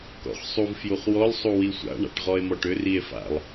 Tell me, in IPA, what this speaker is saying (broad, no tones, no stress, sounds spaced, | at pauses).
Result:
k ɔ̰ χ sˤ u v f j u χ w ɔ l sˤ u w i sʷ a̰ ɳ a̰ ʈ ʁ ɔ e̯ m ɔ ʈ ʏ r i e̯ f a̰ lˠ